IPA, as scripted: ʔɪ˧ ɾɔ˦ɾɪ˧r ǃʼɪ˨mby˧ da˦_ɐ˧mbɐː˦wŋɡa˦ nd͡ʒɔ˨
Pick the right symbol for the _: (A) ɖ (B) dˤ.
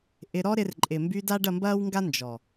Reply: A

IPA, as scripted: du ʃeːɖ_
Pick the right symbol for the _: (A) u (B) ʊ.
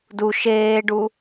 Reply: A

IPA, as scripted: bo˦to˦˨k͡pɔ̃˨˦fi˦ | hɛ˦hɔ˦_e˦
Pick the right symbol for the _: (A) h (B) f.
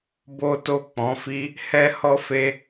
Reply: B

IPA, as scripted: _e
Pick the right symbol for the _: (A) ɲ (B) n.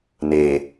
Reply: B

